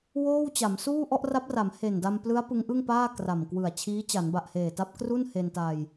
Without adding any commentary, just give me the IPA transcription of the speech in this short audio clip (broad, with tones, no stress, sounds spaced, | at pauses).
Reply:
w oː˥˩ w t͡ɕ a˩˦ m s uː˥˩ ʔ ɔ˥˩ ʔ r a˦˥ p̚ r a˩˦ m h e˨˩ n d a˧ m p l ɯ˦˥ a̯ p ɯ˦˥ ŋ ʔ ɯ˥˩ ŋ p aː˥˩ k r a˨˩ m k w ɯ˨˩ a̯ t͡ɕʰ iː˦˥ t͡ɕ a˩˦ n b a˨˩ ʔ h eː˨˩ t a˦˥ p̚ k r u˥˩ n h e˧ n t a˧ j